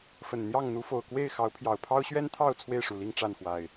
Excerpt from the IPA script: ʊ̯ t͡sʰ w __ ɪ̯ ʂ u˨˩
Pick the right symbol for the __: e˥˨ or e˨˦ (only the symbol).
e˥˨